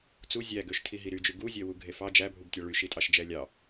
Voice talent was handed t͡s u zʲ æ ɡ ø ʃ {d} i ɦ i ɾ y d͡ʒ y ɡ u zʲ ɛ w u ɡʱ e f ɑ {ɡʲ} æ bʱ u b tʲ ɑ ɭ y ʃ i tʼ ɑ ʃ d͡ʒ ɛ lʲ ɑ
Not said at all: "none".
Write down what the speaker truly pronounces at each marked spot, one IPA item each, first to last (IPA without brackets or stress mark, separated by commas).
tʰ, d͡ʒ